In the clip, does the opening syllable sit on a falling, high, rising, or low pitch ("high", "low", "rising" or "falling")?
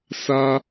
high